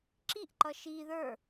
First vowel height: high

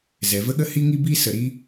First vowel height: mid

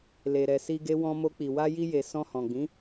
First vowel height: mid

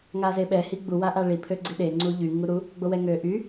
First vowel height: low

